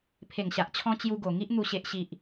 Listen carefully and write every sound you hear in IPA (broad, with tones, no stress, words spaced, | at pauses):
pʰe˨˩ŋɕa˨ʔt͡ɕʰɔ̃˧ t͡ɕju˧ɡo˨˩ ŋi˦ʔ n̪u˨˩ɕe˨ʔɕi˨ʔ